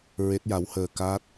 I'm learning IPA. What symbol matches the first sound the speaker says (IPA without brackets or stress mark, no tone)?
ɹ